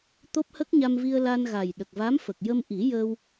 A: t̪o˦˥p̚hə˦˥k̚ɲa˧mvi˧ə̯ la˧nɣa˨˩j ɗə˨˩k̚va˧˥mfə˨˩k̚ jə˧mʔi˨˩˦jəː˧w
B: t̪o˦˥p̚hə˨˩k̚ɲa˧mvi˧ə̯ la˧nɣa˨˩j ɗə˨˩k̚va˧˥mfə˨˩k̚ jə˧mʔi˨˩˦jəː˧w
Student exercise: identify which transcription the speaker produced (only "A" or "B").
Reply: A